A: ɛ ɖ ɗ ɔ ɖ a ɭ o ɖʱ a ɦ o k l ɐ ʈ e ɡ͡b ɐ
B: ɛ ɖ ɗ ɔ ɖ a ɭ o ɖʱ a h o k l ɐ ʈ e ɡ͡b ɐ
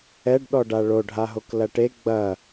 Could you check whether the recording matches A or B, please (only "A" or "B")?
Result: A